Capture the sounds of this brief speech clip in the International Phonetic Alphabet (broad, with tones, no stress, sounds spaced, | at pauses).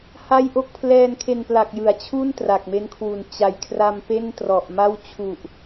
h a˥˩ j ʔ o˥˩ k̚ pʰ l ɛː˧ n kʰ e˧ n p l a˨˩ k̚ j ɯ˩˦ a̯ t͡ɕʰ u˥˩ n t r a˨˩ k̚ m e˦˥ n kʰ w u˨˩ n t͡ɕ a˨˩ j kʰ r a˧ m p e˥˩ n t r ɔ˨˩ ʔ m a˥˩ w t͡ɕʰ u˨˩ ʔ